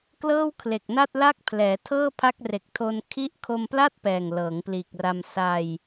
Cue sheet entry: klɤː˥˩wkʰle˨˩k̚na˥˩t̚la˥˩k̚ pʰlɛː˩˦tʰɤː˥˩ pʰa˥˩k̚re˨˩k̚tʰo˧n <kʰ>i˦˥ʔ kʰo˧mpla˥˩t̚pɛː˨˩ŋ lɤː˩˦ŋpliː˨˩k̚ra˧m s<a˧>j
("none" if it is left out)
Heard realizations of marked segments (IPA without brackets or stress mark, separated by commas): kʰ, a˧